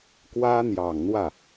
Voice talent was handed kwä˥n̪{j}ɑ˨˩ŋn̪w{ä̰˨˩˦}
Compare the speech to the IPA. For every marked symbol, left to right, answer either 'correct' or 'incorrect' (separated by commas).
correct, incorrect